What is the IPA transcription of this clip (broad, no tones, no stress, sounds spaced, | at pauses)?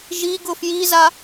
ʒ i ɡ ʊ f j i z a